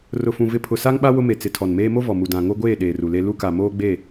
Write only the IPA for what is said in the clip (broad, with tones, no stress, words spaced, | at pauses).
rʊ˨fũ˨ vɪ˦ pʰʊ˨sa˦ŋɓa˦ wʊ˦me˨ t͡sɪ˨ tʰɔ˨nmeː˦ mo˦ vɔ˨mu˨ dã˨ŋo˦ɡʷeː˦˨ ɗeː˨ru˨le˦ lu˦ka˨ moː˦ɡ͡be˦˨